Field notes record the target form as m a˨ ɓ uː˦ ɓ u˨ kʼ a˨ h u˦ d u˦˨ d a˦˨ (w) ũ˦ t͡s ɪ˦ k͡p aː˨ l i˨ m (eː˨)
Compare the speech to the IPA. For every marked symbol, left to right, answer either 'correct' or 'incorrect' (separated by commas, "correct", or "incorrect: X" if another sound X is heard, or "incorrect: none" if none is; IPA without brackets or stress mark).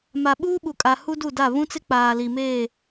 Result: incorrect: β, incorrect: eː˦˨